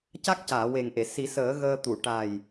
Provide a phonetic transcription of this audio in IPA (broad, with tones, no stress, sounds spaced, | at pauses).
c a˦˥ k̚ c aː˨˩˨ w e˨˩ ŋ ʔ e˨˩˨ s i˨˩˦ s əː˨˩˦ ɣ əː˧ t̪ u˨˩˨ ʈ a˨˩ j